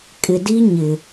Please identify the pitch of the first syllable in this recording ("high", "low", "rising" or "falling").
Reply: low